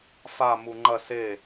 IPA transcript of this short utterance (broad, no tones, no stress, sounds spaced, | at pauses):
f a m u ŋ͡ǃ ɐ s e